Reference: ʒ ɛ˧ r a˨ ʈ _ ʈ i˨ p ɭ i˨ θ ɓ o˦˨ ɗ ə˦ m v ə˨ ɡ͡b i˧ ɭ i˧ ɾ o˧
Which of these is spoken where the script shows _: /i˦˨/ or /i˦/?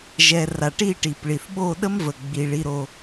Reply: i˦˨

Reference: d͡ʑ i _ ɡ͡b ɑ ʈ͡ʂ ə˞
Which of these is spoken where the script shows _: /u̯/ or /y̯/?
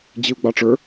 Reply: u̯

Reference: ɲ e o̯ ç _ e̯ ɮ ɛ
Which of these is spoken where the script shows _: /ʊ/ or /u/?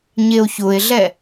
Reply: ʊ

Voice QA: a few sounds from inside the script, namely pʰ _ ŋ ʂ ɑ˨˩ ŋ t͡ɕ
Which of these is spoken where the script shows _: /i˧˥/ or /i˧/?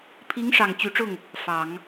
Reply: i˧˥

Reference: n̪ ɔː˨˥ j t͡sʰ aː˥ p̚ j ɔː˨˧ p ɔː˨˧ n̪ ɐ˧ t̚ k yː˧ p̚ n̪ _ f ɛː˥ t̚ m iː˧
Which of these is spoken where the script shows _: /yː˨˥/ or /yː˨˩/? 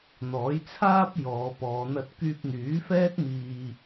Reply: yː˨˥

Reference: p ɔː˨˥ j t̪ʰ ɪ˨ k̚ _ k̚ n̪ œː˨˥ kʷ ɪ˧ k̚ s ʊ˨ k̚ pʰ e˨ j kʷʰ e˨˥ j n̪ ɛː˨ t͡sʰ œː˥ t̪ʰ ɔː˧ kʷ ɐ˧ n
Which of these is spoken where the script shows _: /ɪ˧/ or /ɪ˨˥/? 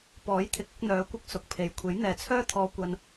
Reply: ɪ˨˥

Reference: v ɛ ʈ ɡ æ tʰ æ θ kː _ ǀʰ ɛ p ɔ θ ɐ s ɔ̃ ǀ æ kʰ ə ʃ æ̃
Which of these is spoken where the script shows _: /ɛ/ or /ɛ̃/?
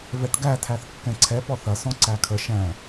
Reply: ɛ̃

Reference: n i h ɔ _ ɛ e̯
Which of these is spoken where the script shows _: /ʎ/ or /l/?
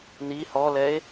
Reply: l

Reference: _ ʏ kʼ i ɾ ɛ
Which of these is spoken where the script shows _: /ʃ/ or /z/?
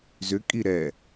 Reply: z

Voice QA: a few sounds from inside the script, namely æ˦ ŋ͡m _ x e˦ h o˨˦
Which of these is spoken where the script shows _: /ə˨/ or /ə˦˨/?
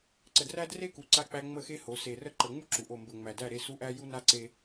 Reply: ə˦˨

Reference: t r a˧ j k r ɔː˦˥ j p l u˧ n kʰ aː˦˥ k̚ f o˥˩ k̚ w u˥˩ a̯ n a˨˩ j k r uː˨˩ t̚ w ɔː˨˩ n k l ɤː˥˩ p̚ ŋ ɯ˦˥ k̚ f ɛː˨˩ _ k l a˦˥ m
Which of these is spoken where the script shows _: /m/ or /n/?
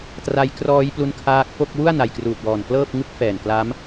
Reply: n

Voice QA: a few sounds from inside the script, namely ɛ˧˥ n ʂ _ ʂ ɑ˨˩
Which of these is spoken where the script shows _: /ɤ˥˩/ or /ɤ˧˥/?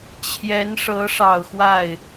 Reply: ɤ˧˥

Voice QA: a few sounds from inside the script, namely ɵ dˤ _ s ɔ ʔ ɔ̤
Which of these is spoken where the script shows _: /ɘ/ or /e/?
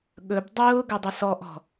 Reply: ɘ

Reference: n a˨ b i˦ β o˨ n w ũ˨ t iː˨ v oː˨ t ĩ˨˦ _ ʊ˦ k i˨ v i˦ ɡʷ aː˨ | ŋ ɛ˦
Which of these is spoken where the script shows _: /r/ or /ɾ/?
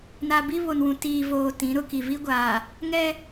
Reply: ɾ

